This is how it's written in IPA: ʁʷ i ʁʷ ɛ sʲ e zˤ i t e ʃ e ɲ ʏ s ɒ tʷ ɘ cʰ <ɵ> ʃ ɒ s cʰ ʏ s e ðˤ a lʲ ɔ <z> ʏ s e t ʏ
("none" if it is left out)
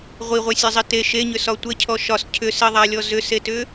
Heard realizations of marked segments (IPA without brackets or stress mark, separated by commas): ɔ, z